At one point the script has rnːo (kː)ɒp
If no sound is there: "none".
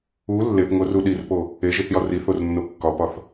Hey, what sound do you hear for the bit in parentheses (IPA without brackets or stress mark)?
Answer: kː